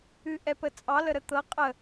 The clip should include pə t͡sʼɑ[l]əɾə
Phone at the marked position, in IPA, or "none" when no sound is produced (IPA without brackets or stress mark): l